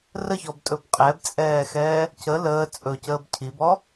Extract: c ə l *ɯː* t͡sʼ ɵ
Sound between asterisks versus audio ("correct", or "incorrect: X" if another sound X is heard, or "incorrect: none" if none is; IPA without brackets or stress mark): incorrect: əː